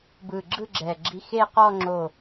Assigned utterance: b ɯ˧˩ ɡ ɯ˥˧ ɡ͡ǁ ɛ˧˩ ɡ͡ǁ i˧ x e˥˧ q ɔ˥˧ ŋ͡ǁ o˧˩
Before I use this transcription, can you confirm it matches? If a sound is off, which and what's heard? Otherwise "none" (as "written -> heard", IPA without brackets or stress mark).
ɡ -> ɡ͡ǁ